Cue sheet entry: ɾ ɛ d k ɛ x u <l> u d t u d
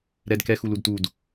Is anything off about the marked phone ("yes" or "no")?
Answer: no